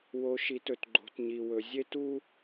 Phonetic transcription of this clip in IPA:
wo˨ʃi˨tɵ˨t ɡ͡ǃo̤˨tɲi˨wɵ˨ zʲe˦tu˦

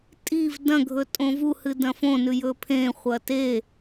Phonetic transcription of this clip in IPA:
tʼiv dɐ̃ɡʱɵ tʼõvuhɨ dɐ̃fõnʉj ɵpʰẽχʷɐ te

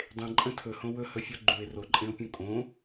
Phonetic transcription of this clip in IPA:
dˤẽǃʼə̃ tʰɵhõ wɵhɵfʲo ɡ͡ǃuɪ̯ roǃʼẽʊ̯pʲũ kʼõ

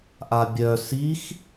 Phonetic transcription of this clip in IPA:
ʔabʲœ six

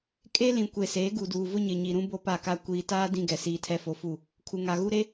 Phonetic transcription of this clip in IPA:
kʼe˦lĩ˨kʷe˨seː˨˦ ɡu˨duː˨vʊ˦ ɲɪ˨ɲi˨ɾũ˦ bo˦pa˦˨ ka˦ kʷiː˨taː˦ dĩ˦ɡɛ˨ siː˨tʰɛ˨fo˨fu˦˨ | kʰu˨ŋa˨ɣu˦ɾe˦

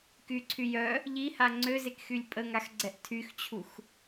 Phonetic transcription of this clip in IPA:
kyǀʰy jœ | ʎiha ŋ͡ǀøzekxylʲ pʼəŋaxɡ͡ǀɛʔ tʰyxt͡ɕʰux

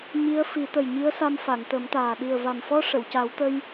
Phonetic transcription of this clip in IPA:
ɲi˧˥ə̯fi˨˩˦t̪ə˨˩jɲi˧˥ə̯ sa˧mfa˨˩˨ŋt̪ə˨˩˦mt̪aː˨˩ ɗi˨˩ə̯va˨˩mfɔ˧ ʂə˨˩˨wca˨˩˦wt̪ə˧j

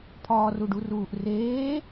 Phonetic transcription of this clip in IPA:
pʰɒːruɖuruːʔ reː

